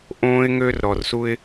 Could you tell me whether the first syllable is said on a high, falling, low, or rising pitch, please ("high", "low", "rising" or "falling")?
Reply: high